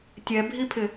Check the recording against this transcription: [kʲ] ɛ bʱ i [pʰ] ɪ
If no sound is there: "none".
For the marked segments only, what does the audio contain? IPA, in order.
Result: tʲ, pʰ

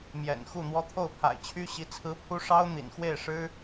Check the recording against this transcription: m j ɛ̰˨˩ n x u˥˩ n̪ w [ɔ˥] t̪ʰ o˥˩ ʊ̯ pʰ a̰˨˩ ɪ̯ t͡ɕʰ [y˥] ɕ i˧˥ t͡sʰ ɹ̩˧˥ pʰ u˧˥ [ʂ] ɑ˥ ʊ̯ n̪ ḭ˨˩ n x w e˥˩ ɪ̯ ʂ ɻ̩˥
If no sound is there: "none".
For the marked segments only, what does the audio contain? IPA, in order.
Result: ɔ˥, y˥, ʂ

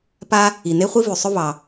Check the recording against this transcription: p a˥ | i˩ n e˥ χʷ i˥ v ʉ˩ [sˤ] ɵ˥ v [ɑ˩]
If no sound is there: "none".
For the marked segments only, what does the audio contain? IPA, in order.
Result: sˤ, ɑ˩

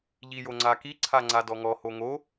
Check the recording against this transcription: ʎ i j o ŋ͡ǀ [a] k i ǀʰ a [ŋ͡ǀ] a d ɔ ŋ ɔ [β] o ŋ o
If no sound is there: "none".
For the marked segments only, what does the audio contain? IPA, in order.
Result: a, ŋ͡ǀ, h

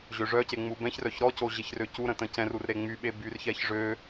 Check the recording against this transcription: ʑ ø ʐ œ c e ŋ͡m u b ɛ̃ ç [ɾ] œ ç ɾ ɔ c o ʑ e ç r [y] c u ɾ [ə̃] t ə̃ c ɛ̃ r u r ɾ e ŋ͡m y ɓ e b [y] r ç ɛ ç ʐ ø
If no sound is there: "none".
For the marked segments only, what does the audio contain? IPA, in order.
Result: r, ø, ə̃, y

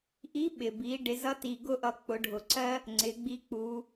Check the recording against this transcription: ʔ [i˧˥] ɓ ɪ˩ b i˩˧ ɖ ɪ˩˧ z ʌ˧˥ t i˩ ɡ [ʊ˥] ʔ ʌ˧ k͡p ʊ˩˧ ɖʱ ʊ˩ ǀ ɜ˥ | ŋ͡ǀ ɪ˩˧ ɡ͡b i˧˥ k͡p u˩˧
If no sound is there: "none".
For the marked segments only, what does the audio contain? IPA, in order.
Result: i˧˥, ʊ˥

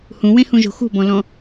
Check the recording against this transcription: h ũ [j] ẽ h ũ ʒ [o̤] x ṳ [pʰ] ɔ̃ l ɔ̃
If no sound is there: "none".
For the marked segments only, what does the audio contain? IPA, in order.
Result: w, o̤, b

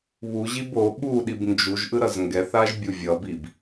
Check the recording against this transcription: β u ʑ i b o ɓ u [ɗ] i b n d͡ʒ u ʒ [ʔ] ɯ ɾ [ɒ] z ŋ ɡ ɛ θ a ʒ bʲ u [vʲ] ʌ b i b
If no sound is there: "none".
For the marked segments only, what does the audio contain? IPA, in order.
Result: ɗ, ʔ, ʌ, vʲ

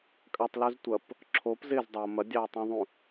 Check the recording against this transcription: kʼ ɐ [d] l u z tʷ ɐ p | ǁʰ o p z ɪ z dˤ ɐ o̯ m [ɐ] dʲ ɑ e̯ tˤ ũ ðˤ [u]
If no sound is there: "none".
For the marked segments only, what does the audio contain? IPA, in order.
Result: tˤ, ɐ, ũ

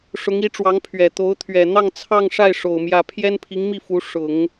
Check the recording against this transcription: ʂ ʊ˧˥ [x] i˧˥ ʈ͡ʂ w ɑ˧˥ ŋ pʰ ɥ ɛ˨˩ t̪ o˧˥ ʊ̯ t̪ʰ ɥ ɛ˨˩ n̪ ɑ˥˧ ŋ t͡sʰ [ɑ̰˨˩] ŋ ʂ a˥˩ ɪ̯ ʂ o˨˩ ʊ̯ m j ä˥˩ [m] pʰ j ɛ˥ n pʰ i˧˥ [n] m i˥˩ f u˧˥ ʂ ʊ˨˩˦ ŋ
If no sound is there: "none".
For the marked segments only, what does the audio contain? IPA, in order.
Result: ŋ, ɑ˥˧, none, ŋ

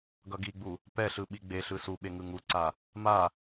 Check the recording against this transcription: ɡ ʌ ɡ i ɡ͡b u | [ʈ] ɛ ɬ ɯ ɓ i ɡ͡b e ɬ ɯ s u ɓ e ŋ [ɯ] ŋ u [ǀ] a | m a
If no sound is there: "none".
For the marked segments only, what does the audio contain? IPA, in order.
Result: p, ɯ, ǀ

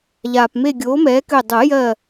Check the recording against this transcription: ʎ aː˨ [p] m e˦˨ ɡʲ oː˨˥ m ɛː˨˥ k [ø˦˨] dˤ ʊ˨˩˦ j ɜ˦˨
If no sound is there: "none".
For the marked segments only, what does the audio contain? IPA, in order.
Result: p, ø˦˨

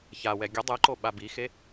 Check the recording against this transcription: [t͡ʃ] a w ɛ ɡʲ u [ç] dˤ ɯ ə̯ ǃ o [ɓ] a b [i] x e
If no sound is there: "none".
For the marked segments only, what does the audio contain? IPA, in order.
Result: ç, none, ɓ, i

